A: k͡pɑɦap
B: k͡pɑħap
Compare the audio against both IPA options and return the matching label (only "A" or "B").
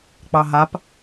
A